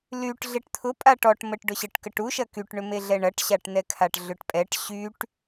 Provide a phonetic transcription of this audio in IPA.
l y ʈ ɮ e ʈ t̪ʰ ʊ pʼ a ʈ ɔ ʈ m ə ʈ ɖ ʊ ɕ ə ʈ k ə ʈ u ʃ ɐ k y ʈ ɳ ʏ m e ɮ ɛ ɳ ɐ ʈ ɕ a ʈ n ɛ kʰ a ʈ ɮ ʏ ʈ pʼ ɛ ʈ ɕ y ʈ

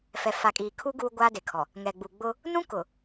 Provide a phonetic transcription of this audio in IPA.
f ɛ˨ f a˨ kʼ iː˨ kʰ u˦ ɡ uː˦ ɡʷ aː˦ d e˨ kʰ ɔ˨ | ŋ ɛ˨ ɡ͡b u˨ ɡ͡b ʊ˦ | n ũ˦ k ʊ˨

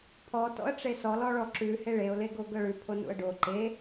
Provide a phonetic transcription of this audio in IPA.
pʰ ɔ t ɔ̰ ə̯ ʈ͡ʂ e s ɔ l ɔ ɭ ɔ ǁ ʉ h e ɭ e ʊ̯ l e ɡ o ɡ ɤ ɭ ʉ pʰ o n ṵ ə̯ ɖ o ǃ e

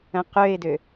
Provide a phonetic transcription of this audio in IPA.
ə̃ q ø ɪ̯ d ø

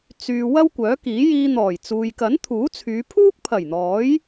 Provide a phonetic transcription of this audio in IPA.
t͡s yː˨ w ɐ˥ w kʷ œː˨˥ k iː˨˥ j iː˧ n̪ ɔː˨˩ j t͡s uː˨ j k ɐ˨˥ n t̪ʰ uː˨˥ t͡sʰ yː˨˧ pʰ uː˥ k̚ pʰ ɐ˨˩ j n̪ ɔː˨˥ j

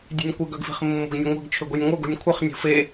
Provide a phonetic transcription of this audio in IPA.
dʲ e̤ nʲ kʷ ɪ ɡ œ ɡ f i̤ χ mː o̤ ɡ nʲ ɐ ŋʷ ɛ̤ ɡ t͡ʃʰ ʏ ɡʷ i nʲ ŋʷ œ ɡ o̤ nʲ kʷʰ ɪ χ nʲ o̤ f e

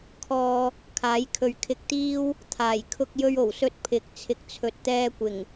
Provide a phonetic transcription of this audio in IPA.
kʰ ɔː˧ | kʰ aː˨˥ j kʰ ɵ˨˧ ɥ kʰ ɪ˧ k̚ t̪ iː˥ w | t̪ʰ aː˨˩ j kʰ ʊ˧ k̚ j ɵ˧ ɥ o˨˩ w s ɵ˥ t̚ pʰ ɪ˨˥ k̚ t͡sʰ ɪ˨ k̚ t͡sʰ ɵ˨ t̚ t̪ ɛː˧ kʷ ɪ˨˩ ŋ

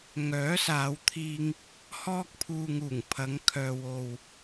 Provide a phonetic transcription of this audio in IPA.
ŋ œː˨˥ s aː˨˧ w t̪ʰ iː˧ ŋ | h ɔː˧ k̚ pʰ uː˨ ŋ uː˨˩ ŋ pʰ ɐ˨˧ ŋ kʰ œː˧ w o˧ w

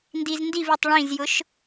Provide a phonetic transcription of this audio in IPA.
n d i z n d i v i tˤ ɭ ĩ z j ʊ ʃ

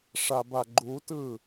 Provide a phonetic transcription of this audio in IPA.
ʂ a b a ɡ͡ǃ u t ɯ

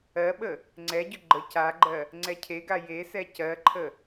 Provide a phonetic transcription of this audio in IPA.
ɜ ɓ ə | ŋ͡ǀ ɛ ɟ ʏ ɡ͡ǃ ə c a ɡ͡ǃ ɜ | ŋ͡ǀ ɛ cʰ e ɡ a j e s ɛ c ɜ ǃʰ ə

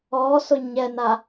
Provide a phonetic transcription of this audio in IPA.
ɔ s ʊ ɲ ɛ n a

